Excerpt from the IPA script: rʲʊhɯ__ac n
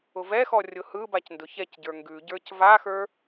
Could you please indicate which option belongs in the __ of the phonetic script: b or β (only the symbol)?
b